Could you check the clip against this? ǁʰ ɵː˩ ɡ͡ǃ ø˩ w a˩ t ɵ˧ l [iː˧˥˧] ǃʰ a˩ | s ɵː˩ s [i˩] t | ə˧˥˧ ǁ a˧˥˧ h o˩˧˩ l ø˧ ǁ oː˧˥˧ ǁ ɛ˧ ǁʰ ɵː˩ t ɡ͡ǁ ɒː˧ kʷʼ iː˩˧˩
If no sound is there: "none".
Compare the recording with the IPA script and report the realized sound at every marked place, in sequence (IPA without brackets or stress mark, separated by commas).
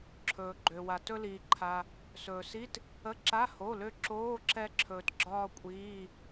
iː˩, i˧˥˧